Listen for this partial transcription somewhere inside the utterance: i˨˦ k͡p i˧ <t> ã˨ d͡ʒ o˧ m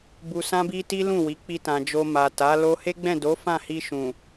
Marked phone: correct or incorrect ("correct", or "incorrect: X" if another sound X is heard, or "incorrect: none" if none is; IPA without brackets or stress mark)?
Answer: correct